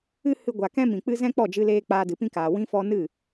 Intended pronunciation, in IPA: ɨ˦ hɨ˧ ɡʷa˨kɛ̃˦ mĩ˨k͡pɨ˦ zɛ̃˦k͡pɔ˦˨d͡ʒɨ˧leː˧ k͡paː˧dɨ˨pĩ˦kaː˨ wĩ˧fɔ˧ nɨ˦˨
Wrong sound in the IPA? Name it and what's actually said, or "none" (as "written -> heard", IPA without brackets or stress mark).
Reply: none